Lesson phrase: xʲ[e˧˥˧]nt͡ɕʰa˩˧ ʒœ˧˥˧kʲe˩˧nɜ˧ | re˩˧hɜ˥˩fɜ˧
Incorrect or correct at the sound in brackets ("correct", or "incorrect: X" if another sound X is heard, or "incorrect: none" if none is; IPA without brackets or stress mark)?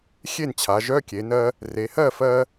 incorrect: e˥˩